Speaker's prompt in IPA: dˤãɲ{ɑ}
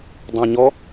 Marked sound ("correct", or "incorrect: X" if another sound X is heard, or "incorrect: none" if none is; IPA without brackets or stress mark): incorrect: ɔ